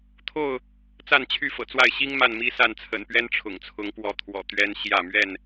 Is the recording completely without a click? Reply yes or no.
yes